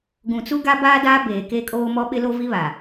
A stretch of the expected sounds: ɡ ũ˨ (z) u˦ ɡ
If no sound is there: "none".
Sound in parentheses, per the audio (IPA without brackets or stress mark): t͡s